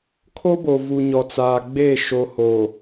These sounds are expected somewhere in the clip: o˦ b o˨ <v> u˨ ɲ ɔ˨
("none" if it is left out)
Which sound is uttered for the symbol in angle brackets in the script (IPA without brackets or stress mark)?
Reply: v